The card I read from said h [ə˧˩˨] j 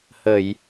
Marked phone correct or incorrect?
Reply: correct